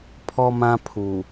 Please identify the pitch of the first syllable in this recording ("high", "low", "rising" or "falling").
high